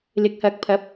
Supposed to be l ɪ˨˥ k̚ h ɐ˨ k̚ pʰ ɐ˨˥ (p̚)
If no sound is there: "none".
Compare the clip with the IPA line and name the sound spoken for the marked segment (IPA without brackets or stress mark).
p̚